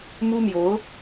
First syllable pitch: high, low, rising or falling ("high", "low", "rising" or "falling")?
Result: high